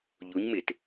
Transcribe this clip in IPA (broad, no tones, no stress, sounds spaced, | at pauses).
ʎ u ɲ m ɪ t